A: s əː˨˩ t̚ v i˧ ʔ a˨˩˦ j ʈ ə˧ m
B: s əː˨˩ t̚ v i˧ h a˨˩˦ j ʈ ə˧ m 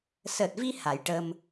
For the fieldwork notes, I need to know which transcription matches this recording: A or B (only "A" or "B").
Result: B